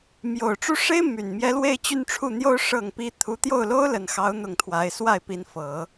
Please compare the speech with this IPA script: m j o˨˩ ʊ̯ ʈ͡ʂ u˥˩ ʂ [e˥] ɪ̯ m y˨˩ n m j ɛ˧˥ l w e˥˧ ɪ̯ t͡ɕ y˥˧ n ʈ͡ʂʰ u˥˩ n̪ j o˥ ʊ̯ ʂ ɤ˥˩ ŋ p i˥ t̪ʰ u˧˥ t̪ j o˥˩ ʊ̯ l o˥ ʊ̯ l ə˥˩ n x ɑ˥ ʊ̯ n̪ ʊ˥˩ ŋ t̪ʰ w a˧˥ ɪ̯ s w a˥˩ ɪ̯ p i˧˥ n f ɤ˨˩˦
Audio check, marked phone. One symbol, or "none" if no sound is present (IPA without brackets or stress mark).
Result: e˥